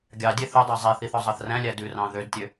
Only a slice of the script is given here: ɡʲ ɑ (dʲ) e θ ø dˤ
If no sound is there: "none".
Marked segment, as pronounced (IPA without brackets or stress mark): dʲ